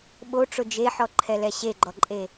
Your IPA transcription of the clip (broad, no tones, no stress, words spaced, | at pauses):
ɓoʈ͡ʂʊ d͡ʒeħɔǃʰɛlɛ ɕeɡ͡ǃɔǃʼe